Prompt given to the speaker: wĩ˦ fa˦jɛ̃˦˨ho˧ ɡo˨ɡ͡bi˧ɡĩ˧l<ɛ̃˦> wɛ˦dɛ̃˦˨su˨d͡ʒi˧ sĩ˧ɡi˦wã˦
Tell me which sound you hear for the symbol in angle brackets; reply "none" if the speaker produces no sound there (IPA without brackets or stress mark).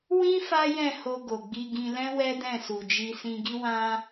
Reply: ɛ̃˦